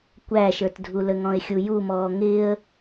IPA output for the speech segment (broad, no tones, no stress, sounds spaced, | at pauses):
kʷ æ ʃ ə˞ t dʱ u l ə ŋ ɔ̃ ɪ̯ xʲ u j u m ɔː ŋ ɪː ə̯